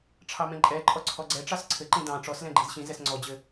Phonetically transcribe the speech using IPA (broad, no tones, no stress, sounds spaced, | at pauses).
ʈ͡ʂʰ ɑ m ɛ̃ ǃʼ ɛ ǃʼ ɔ ǀʰ ɔ ɡ͡ǀ ɛ ʈ͡ʂ ɑ s ǀʰ ɘ ǃ ĩ d ɑ̃ ʈ͡ʂ ɔ s l ɛ̃ ɡ͡ǃ i z ɕ ĩ z ɛ s ŋ͡ǀ ɔ d͡ʑ ɘ